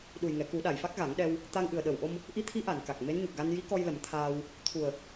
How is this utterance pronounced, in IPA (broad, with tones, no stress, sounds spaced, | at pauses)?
ɗ u˨˩ j ŋ ɛ˨˩˨ k u˨˩˦ ɗ a˨˩ j f a˦˥ k̚ ɣ a˨˩˦ ŋ ɗ ɛ˧ w | t̪ a˧ ŋ ʔ ɨ˨˩ ə̯ ɗ ə˨˩ w ʔ o˧ m | ʔ i˧˥ t̪ʰ i˧˥ ʔ a˨˩˨ n k a˨˩ k̚ m e˧˥ n ɲ u˨˩ k̚ ɣ a˧ n j i˧˥ k ɔ˧ j l ə˨˩˦ m t̪ʰ aː˧ w | t̪ʰ u˨˩ ə̯